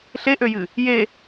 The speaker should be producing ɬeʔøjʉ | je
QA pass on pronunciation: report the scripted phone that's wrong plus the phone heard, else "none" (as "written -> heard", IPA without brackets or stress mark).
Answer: ʉ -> ɨ